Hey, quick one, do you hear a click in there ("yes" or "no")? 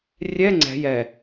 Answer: yes